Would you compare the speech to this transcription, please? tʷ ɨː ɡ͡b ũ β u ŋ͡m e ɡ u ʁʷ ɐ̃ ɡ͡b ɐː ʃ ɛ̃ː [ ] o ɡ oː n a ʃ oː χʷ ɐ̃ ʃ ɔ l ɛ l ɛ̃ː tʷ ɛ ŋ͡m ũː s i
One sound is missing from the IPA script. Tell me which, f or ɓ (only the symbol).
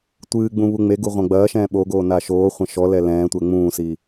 ɓ